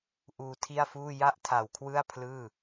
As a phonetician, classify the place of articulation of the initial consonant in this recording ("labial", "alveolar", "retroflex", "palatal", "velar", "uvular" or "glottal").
glottal